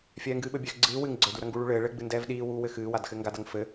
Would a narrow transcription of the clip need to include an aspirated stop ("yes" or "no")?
no